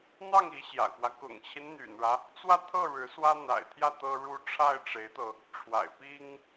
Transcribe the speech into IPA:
n̪ ɑ˥˩ ŋ i˧˥ ɕ j ä̰˨˩ k w ä˦ k ʊ̰˨˩ ŋ t͡ɕʰ i˦ n n̪ y̰˨˩ n ɻ ä˦ | t͡s w ä˥˧ t̪ʰ ɤ˥˩ ɻ ɻ̩˧˥ s w ä˥ n̪ a̰˨˩ ɪ̯ t̪ʰ j ä˥˩ t̪ ɤ˥ ɻ u˥ ʈ͡ʂʰ a˥˩ ɪ̯ ʈ͡ʂ e˧˥ ɪ̯ t̪ ɤ˧ | ʈ͡ʂʰ w a̰˨˩ ɪ̯ p i˥ ŋ

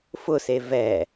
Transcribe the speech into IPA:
f ʊ s e v ɛ

